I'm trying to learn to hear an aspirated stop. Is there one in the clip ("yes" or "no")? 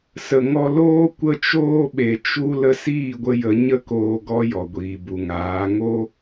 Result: no